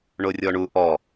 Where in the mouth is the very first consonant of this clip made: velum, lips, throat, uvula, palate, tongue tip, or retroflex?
retroflex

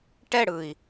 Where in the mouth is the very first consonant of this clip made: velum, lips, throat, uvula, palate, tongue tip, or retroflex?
retroflex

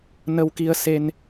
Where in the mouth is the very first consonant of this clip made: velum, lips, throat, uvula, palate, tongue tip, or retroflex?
tongue tip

